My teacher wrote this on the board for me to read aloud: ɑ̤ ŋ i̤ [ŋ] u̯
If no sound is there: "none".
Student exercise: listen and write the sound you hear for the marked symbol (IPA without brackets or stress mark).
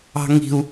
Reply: none